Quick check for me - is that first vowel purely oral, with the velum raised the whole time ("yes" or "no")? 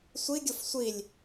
yes